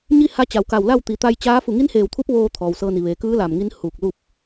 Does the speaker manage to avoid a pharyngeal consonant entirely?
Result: yes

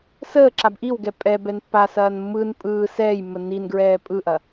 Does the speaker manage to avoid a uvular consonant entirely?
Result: yes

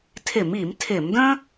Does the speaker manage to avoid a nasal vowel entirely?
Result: no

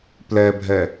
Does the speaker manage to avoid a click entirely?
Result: yes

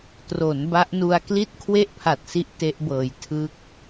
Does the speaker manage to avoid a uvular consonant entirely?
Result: yes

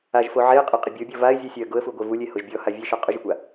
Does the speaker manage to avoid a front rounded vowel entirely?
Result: yes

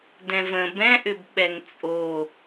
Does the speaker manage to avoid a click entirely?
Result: yes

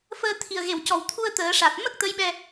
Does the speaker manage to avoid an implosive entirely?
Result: no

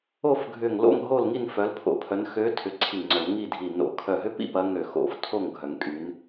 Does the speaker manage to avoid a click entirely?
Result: no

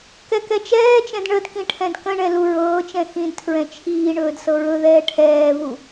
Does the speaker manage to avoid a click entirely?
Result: yes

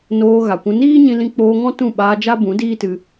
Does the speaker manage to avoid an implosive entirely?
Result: no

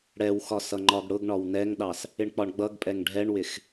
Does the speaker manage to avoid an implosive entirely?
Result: no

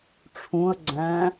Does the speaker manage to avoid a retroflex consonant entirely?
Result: no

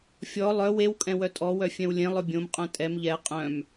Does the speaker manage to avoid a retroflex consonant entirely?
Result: yes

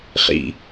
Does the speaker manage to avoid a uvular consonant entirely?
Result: no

